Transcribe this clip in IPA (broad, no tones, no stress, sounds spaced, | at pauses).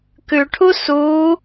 k ʉ ʈʰ u s u